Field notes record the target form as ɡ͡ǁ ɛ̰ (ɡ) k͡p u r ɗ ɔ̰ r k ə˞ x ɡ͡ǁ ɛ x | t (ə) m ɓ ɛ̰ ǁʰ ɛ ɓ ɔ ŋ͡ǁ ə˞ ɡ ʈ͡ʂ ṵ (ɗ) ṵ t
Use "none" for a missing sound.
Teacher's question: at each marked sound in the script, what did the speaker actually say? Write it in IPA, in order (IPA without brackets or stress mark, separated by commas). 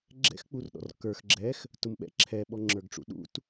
x, ʊ, ɗ